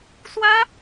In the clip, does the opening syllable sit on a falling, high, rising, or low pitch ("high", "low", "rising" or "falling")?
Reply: high